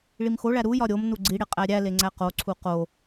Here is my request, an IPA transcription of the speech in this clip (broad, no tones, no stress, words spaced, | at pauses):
ɭimxoɭæ ɾujɒ ɾʲomnu ɡ͡ǀiɽe qʼæɾʲæle ŋ͡ǀæqoǀʰu qo